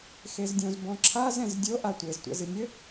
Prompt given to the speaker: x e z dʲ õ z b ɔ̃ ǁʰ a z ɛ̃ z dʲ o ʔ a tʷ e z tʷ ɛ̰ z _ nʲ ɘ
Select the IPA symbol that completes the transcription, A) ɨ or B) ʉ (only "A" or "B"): A